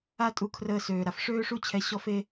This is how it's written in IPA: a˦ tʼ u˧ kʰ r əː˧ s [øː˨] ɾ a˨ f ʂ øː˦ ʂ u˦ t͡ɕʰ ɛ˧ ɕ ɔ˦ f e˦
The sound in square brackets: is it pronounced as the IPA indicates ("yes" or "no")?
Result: yes